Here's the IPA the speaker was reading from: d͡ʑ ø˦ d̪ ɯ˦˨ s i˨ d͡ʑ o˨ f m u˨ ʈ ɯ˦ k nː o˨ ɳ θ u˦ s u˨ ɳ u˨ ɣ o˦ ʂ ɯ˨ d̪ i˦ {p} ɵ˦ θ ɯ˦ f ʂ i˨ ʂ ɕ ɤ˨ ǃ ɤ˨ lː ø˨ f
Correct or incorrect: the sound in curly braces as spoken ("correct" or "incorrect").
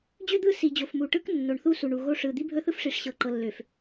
incorrect